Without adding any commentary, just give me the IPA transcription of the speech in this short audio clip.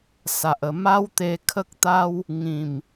s a˨ ʔ ə˨˩ m a˦ w t̪ e˧ kʰ ə˦ k̚ t̪ a˦ w | ŋ ĩ˨˩ m

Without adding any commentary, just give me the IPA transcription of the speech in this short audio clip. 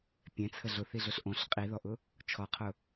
pʲ ɛ̃ t͡sʰ ə ɮ ʊ θ i ɮ ʊ ɬ ʔ õ ɬ qʼ i ð ɔ ʔ ʊ | t͡ʃʰ ɔ qʰ ʊ

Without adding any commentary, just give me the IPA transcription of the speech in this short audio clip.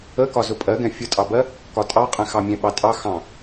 ə k ɒ z ʊ pʼ ɜ ɡ ɛ̃ fʲ ʊ tʼ ɑ b ɜ | k ɒ tʼ ɑ qʼ ɛ̃ x ɑ mʲ ɛ̃ ɓ ɑ tʼ ɑ x ɑ̃

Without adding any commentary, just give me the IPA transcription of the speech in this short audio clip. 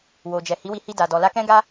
w o˨ d͡ʒ ɛ˨ h i˨˦ w i˧ h i˧ d a˨ d ɔ˨ l a˧ k ɛ̃˦ ɡ a˦

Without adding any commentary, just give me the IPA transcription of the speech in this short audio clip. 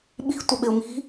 ɓ i̤ tʷ ə ɓ ɪ ʊ̯ m i̤

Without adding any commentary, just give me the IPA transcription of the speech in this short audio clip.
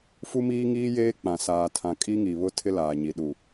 f u˦ m iː˦ ŋ iː˦ j eː˦ k͡p ã˨ s aː˨ tʰ ã˨ kʼ i˦ ŋ i˨ β ʊ˦ tʰ ɪ˦ l aː˨ ɲ i˨ ɗ u˨

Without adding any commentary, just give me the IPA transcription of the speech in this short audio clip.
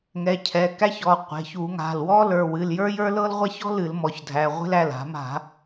ŋ ɛ˩˧˩ cʰ ɛ˩˧˩ k æ˥ ç ɔ˩˧˩ qʷ e̤˩˧˩ ç u˧˩˧ ŋ a̤˩˧˩ l w ɔ˥ l ə˞˩˧˩ w ɨ˩˧˩ l j ə˞˥ j ə˞˥ l ɤ˥ l ʁʷ a˥ ç ɔ̤˥ l ɨ˧˩˧ l m ɔ˩˧˩ ç dʱ æ˩˧˩ ʁʷ e̤˥ l æ˩˧˩ l a̤˧˩˧ m a̤˧˩˧

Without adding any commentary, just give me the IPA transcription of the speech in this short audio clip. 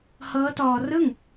h ɤː˦˥ t ɔː˧ r ɯ˥˩ ŋ

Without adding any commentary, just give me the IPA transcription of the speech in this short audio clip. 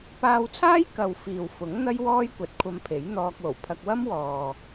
p aː˧ w t͡sʰ aː˥ j k ɐ˨ w f iː˨ w f ʊ˨˥ ŋ n̪ ɐ˥ j w ɔː˥ j kʷ ɐ˨˥ t̚ kʷʰ ɐ˧ m pʰ e˨˥ j n̪ ɔː˧ k̚ w o˨˩ w pʰ ɐ˧ k̚ w ɐ˥ m w ɔː˨

